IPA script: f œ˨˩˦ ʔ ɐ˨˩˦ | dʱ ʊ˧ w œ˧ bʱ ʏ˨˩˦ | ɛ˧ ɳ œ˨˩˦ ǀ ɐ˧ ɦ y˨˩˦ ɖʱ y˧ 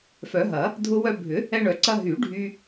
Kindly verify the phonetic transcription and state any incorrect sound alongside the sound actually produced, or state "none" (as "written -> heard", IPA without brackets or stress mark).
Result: ʔ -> ɦ